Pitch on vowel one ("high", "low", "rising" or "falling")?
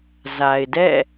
low